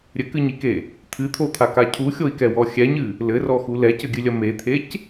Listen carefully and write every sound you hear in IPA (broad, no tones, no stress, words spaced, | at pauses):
ɾʲɘkɨɲike | t̪ʰɨt̪ʰot̪ʰaka cʰuxʲoi̯kɛwɔ xʲɛɲɨ | lɘrɔxu lɛcɘɡʲɨlʲɐ met̪ʰec